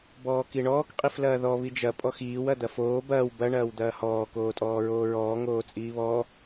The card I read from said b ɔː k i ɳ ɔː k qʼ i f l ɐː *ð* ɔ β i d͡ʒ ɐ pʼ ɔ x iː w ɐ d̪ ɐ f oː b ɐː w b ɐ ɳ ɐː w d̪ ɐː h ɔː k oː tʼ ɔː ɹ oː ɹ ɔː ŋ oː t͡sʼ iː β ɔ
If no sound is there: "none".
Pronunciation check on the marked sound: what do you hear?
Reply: ð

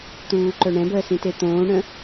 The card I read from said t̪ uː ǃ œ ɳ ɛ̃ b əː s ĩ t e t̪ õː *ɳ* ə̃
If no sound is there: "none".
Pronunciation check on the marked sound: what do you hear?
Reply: ɳ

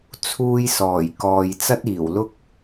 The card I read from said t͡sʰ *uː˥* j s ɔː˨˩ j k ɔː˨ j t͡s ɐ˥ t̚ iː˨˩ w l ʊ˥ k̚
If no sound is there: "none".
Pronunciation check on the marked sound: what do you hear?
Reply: uː˧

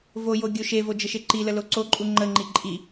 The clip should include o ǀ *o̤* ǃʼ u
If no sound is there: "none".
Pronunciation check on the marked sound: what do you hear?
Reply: o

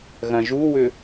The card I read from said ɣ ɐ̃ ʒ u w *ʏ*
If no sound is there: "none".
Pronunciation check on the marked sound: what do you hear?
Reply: ʏ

